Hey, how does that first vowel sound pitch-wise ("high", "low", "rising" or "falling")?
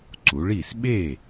rising